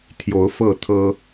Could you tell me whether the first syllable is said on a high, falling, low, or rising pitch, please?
rising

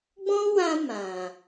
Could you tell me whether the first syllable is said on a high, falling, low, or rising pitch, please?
high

